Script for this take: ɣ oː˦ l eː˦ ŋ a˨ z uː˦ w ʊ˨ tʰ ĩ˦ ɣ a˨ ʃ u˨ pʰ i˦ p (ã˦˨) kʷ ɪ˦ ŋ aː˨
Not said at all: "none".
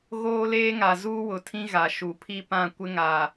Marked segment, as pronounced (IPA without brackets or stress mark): ã˦˨